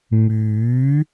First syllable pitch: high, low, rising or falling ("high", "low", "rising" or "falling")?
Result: rising